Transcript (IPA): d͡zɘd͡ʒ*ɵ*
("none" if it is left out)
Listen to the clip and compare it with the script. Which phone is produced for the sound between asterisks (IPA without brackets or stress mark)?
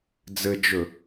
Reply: ɵ